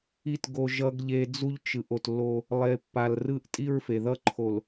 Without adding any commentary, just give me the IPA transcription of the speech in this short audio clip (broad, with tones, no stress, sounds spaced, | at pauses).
i˨ t ɡ o˨ ʒ ʌ˨ ɡ ʎ e˨ d͡z u˦ ʎ t͡ʃ ɯ˨ ʔ o˨ t lː o˦ | lˠ e˨ pː a˨ l r ɯ˦ ʔ tʼ i˦ ɹ f e˨ ð ʌ˦ ǃʰ o˨ l